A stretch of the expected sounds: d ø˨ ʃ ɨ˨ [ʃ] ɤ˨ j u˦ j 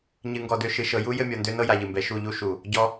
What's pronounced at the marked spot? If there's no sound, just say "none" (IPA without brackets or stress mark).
ʃ